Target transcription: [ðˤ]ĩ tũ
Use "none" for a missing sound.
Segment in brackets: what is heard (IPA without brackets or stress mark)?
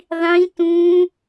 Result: ðˤ